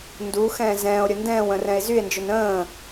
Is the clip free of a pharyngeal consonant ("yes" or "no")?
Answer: yes